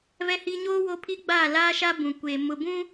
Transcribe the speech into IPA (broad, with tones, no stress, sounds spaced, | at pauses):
v ɛ˦ h i˦ ɲ oː˦ w o˦ pʰ i˦ ɡ͡b aː˦˨ l aː˦ ʃ a˦ b ũ˨ kʷ eː˨ m ʊ˨ b ũ˦